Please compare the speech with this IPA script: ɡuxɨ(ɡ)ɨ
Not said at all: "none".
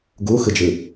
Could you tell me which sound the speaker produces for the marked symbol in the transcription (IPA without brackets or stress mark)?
d͡ʒ